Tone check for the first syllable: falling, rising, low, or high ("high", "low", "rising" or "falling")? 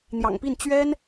low